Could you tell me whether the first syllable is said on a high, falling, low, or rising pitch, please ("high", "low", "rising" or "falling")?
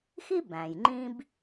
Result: high